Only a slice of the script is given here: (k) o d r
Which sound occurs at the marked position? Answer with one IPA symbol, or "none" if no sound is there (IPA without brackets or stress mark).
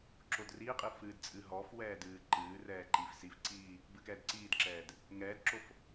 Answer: ǁ